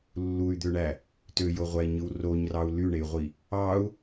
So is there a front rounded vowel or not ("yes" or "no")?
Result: yes